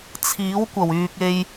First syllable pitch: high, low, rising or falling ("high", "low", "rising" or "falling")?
rising